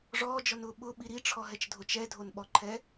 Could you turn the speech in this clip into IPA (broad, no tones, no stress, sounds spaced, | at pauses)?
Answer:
ʐ ɔː d͡ʒ ɔ n ʊː ɓ ʊ ɓ i ɾ i ʈ͡ʂʰ ɔ ɦ ɛ t͡ʃ dʱ o t͡ʃ ɛ dʱ o n ɓ ɔ ǃʰ ɛ